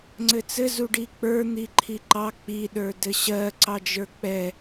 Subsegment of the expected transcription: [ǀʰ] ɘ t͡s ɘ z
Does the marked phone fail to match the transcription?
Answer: yes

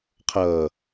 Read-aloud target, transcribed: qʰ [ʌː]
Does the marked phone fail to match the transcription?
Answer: no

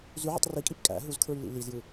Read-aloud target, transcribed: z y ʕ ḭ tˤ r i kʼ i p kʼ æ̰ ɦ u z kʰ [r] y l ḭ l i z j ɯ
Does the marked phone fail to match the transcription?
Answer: yes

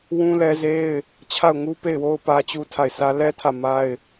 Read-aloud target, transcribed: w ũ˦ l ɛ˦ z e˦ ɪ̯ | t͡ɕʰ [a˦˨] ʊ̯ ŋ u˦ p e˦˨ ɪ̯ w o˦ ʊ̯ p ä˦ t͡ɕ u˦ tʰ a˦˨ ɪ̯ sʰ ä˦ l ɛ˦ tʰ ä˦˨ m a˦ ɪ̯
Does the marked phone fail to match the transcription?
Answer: no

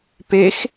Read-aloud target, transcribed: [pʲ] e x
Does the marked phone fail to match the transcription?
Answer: yes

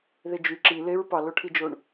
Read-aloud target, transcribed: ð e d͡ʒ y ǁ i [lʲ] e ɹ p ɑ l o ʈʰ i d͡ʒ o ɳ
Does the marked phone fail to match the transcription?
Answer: yes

